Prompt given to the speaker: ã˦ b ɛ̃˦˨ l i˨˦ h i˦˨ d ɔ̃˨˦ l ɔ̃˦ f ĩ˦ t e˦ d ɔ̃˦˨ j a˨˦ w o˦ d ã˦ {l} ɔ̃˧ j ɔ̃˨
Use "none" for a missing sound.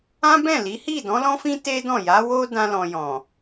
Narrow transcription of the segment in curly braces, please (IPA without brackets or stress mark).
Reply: l